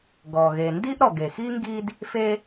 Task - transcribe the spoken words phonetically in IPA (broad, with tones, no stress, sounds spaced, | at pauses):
ɡ ɔ˩ ɣ e˩ n d i˥ ʔ ɾ ɔ˩ ɡ e˩ x i˥ ŋ ɡ i˥ d | f e˥